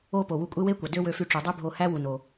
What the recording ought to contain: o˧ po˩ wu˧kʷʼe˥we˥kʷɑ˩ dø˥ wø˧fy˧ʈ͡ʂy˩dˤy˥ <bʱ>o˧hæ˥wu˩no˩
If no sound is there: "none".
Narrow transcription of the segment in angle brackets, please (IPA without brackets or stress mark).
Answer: bʱ